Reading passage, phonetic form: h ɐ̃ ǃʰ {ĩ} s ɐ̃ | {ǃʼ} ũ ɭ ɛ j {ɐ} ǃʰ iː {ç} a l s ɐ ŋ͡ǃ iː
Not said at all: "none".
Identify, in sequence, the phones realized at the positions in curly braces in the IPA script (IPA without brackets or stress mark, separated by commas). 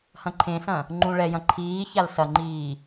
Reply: ẽ, ŋ͡ǃ, ɐ̃, ç